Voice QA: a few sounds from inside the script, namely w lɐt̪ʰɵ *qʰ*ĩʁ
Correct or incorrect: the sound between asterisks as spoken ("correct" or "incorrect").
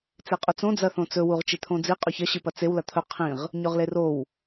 correct